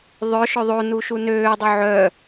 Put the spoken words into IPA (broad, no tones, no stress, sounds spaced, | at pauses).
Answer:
ðˤ œ ʃ œ ðˤ o n u ʃ u n øː dˤ u ʕ œ